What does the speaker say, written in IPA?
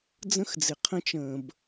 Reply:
d͡z ə̃˥ x d͡z ɪ˩ qʰ ə̃˥ t͡ʃ ə̃ː˩ b

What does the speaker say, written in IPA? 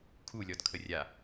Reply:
kʰ u lʲ ɔ d kʰ ə rʲ a

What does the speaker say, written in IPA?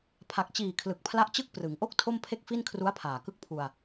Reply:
pʰ a˨˩ k̚ t͡ɕ iː˨˩ kʰ l ɯ˨˩ k̚ pʰ l a˦˥ ʔ t͡ɕ ɯ˦˥ k̚ p r ɯ˩˦ ŋ ʔ o˥˩ k̚ tʰ o˥˩ m pʰ e˥˩ k̚ f i˥˩ n kʰ r u˦˥ a̯ pʰ aː˨˩ k ɯ˥˩ k̚ pʰ u˧ a̯

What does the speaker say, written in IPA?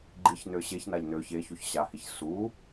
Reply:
ɡ͡ǃ i ç n ø ɕ e ç n a ʎ n ø ç e ç u ç ɕ a h i ç s u

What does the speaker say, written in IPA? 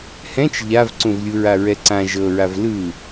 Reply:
h ɛ̃ t͡ʃ ʎ a v ǀ ũ v lʲ u ɹ a ɹ ɛ ǀ ã ʒ ɤ ɹ a v l ɯ

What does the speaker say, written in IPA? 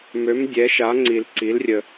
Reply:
m ø˩˧ m dʲ ɛ˩˧ ʃ a˩˧ ŋ͡ǀ i˩ l ǀ i˩˧ l rʲ ə˩

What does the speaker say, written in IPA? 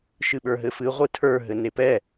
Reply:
ʃ ɨ ɓ ə˞ ɦ ɘ f ɨ ʁʷ ɨ tʰ ə˞ ɦ ɘ n e p ɛ

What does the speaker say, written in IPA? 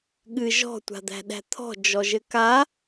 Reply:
ɠ ɨ ʒ ɔ̤ tʷ a̤ d̪ æ̤ ɗ æ̤ t̪ʰ ɔ̤ d͡ʒ ɔ ʒ ɘ k a

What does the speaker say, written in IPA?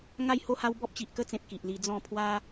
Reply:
ŋ a˥˧ j h o˥˧ h a˦ w b ɔ˦ p̚ t͡ɕ i˨ ʔ k ə˦ t͡s ẽ˨ p̚ k i˨ ʔ l i˧ d͡z ɔ̃˥˧ pʰ w a˦

